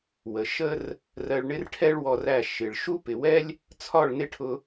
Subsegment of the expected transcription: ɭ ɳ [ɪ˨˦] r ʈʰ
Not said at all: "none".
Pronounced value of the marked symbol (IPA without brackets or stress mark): ɪ˦